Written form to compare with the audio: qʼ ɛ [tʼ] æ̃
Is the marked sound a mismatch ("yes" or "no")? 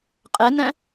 yes